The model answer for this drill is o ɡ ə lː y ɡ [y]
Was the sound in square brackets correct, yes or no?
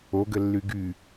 yes